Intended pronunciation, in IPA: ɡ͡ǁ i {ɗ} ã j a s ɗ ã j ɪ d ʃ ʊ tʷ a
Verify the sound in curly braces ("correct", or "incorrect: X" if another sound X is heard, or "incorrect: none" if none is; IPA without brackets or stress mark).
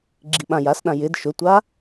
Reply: incorrect: ɓ